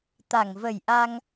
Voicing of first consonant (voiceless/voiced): voiceless